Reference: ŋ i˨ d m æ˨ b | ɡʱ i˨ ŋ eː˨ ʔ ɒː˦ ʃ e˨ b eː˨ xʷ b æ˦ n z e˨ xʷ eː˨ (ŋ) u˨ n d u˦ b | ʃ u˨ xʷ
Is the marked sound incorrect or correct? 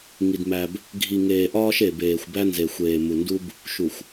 incorrect: m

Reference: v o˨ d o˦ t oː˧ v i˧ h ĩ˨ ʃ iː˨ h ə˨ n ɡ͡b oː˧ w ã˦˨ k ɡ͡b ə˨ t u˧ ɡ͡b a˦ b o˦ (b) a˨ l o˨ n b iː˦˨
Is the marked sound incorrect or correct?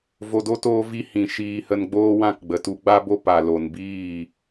incorrect: p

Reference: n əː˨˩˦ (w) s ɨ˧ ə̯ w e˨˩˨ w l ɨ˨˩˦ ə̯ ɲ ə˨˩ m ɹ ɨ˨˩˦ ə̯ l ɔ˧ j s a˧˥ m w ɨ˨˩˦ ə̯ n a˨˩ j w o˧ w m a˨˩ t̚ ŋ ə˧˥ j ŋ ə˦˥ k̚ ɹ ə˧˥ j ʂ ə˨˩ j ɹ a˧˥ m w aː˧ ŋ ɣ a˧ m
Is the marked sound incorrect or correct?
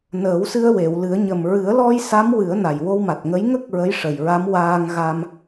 correct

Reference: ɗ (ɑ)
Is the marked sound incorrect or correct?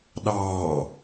incorrect: ɑː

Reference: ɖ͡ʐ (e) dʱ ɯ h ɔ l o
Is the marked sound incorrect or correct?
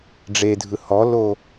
correct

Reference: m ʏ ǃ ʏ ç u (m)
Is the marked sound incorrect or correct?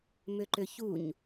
incorrect: ɲ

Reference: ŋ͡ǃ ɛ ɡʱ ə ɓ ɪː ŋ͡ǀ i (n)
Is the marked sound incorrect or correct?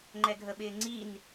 correct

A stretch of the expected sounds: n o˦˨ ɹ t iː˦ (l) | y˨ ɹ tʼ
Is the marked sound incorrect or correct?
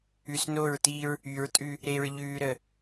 incorrect: ɹ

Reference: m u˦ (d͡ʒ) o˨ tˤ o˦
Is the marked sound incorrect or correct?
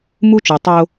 incorrect: t͡ʃ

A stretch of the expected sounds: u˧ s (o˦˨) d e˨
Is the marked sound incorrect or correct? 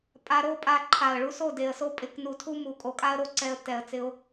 correct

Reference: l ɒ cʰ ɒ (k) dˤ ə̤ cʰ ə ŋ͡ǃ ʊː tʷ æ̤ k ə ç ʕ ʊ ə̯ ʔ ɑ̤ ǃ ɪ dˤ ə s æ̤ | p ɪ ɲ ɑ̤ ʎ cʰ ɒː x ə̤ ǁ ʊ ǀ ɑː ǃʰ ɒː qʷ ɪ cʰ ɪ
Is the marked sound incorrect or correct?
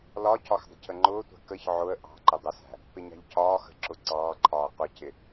incorrect: x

